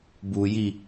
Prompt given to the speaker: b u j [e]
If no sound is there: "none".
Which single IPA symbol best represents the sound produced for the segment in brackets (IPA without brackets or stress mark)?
i